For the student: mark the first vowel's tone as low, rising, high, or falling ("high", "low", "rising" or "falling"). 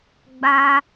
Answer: high